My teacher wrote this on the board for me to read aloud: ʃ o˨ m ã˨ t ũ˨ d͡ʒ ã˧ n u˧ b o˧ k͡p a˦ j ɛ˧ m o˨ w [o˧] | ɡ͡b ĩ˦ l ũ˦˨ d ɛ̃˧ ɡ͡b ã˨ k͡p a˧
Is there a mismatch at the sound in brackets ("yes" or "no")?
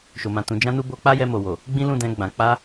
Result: yes